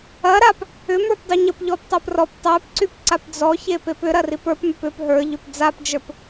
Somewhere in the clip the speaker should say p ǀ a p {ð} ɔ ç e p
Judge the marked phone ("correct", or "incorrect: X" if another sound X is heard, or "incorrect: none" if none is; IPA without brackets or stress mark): incorrect: d͡z